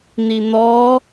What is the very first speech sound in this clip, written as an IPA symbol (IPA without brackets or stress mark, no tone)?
n̪